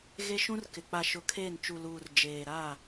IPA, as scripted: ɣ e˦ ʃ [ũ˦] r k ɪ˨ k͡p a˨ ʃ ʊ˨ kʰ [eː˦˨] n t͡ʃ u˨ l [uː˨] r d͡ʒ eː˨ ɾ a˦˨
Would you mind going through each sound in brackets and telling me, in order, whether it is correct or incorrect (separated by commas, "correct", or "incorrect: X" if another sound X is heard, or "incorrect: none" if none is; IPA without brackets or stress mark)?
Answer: correct, correct, correct